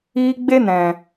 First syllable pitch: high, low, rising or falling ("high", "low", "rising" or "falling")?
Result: high